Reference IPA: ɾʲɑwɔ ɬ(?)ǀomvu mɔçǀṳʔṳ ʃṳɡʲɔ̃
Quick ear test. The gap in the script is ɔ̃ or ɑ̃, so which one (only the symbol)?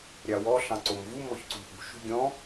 ɑ̃